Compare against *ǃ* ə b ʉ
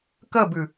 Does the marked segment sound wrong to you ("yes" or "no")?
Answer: yes